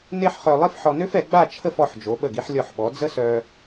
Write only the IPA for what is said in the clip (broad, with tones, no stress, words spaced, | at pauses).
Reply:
ne˥ħχœ˧lˠi˥f ħɔ˧nø˥fɛ˩˧ɡ͡ba˥˧ t͡ʃʰə˥˧fɔ˧ħd͡ʒo˩˧ ɓə˧˩ɡi˧ħlʲɔ˧˩ħɓɔ˩˧ d͡zə˥sœ˧